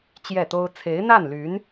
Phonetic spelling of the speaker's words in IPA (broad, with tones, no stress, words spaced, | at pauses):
t͡ɕjɛ˥˩t̪o˥ʊ̯ t͡sʰe˧˥ɪ̯n̪a˥˩nly˧˥n